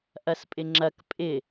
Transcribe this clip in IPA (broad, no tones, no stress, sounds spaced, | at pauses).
ʔ ɐ s pʼ ɪ ŋ͡ǁ ɐ k pʼ ɪ